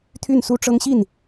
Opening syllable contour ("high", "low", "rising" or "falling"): falling